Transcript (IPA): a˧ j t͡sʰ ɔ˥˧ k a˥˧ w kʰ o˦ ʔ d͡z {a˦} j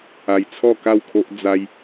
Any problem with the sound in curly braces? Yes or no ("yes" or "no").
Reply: no